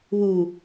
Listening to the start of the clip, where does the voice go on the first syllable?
low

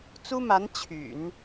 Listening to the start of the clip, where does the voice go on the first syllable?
high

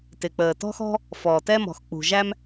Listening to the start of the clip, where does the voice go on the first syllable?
low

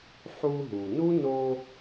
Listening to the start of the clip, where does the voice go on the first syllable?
high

